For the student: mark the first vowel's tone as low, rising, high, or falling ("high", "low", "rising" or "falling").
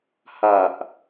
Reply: low